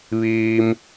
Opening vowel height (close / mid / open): close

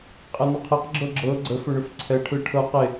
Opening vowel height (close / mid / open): mid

